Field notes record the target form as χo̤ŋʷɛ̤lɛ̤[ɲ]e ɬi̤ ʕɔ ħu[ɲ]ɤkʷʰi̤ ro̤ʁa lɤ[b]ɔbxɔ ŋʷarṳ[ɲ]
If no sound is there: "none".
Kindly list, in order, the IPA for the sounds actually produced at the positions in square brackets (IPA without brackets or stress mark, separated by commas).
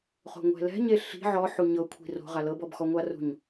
ɲ, ɲ, b, ɲ